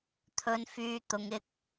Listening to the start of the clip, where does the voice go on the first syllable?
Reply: low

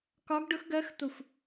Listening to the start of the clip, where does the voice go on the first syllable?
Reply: rising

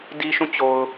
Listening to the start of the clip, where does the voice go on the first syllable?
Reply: high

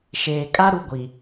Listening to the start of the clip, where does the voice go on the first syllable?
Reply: low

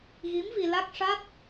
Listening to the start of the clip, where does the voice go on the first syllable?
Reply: rising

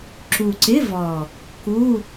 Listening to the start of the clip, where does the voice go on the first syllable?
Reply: low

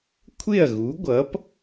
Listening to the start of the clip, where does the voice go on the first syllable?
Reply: falling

